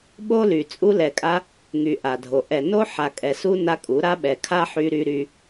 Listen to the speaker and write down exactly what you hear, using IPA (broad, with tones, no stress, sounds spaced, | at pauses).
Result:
ɓ o˦ l y˨ t͡sʼ u˧ l ɛ˨ kʼ a˧ | ŋ y˨ ʔ a˨ dʱ o˨ ʔ ɛ˨ n o˦ ħ a˨ kʼ ɛ˨ s u˦ n a˦ kʼ u˨˦ ɾ a˦ ɓ ɛ˨ kʰ a˦ ħ y˧ ɾ y˧ ɾ y˦